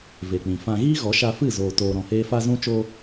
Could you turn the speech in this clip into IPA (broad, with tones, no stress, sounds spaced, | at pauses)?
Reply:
v e˨ k͡p ĩ˨ f ã˧ ɣ iː˦ ɣ ɔ˨˦ ʃ a˧ f ɨ˦˨ z oː˧ t oː˧ ɾ ɔ̃˧ h eː˦ f a˧ z ũ˧ t͡ʃ o˧